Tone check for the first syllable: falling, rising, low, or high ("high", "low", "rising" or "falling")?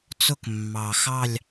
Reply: falling